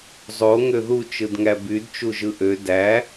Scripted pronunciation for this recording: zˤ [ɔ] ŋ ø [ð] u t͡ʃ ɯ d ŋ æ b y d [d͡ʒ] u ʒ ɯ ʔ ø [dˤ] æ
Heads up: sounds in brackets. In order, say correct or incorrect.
incorrect, correct, incorrect, incorrect

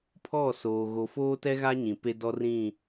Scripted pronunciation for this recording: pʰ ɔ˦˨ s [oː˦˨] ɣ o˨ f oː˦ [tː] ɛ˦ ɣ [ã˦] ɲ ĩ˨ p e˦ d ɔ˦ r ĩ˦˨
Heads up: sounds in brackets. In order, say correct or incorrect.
incorrect, incorrect, incorrect

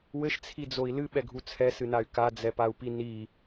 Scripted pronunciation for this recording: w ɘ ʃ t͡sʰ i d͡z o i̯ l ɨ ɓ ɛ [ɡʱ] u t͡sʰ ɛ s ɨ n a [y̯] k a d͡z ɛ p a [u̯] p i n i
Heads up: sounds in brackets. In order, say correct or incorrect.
correct, correct, correct

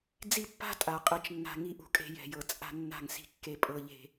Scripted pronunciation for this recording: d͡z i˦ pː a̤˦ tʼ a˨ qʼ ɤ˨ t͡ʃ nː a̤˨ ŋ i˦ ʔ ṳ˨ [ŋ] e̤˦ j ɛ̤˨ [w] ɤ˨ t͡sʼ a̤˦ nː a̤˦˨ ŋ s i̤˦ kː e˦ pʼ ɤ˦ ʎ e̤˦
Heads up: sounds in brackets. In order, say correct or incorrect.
incorrect, incorrect

